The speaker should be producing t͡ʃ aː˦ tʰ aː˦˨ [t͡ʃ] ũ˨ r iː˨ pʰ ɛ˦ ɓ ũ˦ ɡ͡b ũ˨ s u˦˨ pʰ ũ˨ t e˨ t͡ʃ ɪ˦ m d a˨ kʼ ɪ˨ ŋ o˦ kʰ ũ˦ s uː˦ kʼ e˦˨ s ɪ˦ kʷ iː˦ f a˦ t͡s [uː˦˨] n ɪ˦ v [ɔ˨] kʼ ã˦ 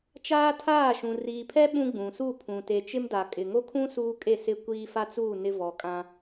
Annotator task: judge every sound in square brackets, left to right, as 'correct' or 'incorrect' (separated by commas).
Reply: incorrect, correct, correct